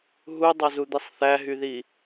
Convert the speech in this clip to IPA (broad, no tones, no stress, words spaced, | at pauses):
ɦudˤɑzud̪isˤ θæɦyði